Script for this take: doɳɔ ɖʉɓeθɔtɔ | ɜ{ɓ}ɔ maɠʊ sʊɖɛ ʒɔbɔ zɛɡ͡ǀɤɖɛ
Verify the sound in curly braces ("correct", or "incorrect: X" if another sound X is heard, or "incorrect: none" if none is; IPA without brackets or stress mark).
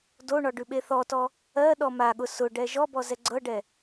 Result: incorrect: ɗ